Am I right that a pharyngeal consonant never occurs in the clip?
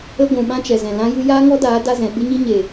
yes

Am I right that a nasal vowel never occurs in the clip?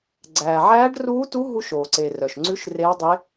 yes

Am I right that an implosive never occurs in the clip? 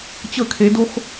yes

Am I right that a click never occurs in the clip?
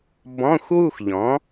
yes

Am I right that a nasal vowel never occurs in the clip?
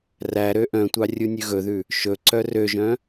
no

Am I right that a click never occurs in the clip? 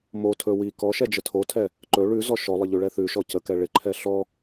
no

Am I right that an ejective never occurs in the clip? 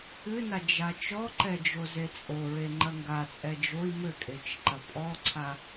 no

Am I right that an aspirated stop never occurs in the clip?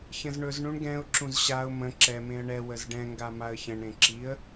yes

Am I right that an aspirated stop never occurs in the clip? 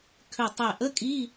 no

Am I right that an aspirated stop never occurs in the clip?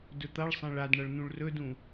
yes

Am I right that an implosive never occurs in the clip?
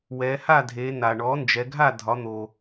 yes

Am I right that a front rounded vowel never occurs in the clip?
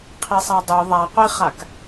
yes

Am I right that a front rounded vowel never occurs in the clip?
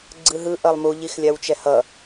yes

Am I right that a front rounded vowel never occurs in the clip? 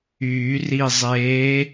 no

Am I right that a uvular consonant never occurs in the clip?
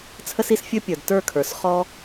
no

